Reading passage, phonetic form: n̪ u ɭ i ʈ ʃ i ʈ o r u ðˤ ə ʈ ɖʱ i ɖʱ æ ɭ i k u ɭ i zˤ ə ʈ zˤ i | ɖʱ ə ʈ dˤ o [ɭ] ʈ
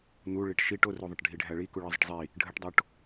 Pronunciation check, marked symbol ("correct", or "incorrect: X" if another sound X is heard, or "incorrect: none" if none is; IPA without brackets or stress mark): incorrect: none